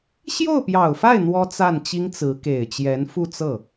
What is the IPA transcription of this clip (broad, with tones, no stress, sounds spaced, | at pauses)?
ɕ j o˥˩ ʊ̯ p j ɑ˨˩ ʊ̯ f a˥˩ ɪ̯ n̪ w ɔ˥ t͡s a˥˩ n t͡ɕ i˥ ŋ t͡s ɹ̩˧˥ k e˨˩ ɪ̯ t͡ɕ j ɛ˧˥ n f u˥˧ t͡s ɤ˥˩